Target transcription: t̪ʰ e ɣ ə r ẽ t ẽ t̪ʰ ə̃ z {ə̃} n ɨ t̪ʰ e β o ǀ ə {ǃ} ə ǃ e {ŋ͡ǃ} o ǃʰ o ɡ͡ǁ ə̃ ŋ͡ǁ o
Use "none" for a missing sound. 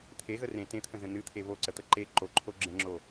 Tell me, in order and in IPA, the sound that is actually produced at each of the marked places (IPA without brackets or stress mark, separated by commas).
ə̃, t̪, ǃ